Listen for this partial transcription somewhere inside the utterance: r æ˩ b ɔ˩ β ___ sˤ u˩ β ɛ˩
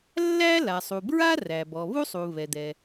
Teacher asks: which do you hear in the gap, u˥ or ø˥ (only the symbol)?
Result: u˥